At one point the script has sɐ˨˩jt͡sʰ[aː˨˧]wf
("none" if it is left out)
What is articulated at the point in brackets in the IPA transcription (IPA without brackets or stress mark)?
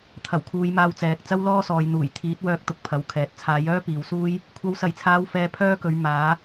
aː˨˧